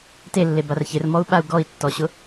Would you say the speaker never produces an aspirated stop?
yes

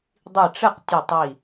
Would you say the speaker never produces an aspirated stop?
yes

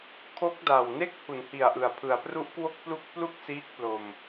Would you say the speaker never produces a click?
yes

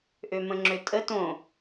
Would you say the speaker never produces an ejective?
no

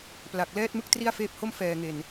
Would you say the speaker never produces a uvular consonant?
yes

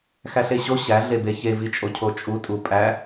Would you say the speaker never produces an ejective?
no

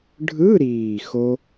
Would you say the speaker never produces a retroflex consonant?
no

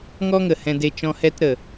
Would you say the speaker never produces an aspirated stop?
yes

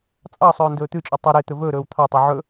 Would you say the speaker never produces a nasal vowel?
yes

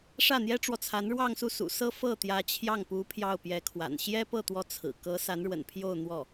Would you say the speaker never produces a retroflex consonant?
no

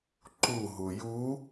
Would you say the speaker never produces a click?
no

